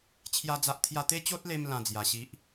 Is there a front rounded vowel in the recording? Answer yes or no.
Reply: no